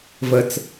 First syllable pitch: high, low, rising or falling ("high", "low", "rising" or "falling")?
low